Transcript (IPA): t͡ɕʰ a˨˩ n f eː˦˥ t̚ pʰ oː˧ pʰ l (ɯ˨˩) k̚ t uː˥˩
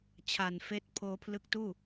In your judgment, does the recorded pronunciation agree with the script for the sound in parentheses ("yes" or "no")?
no